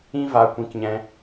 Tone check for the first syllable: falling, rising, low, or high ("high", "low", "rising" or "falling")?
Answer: high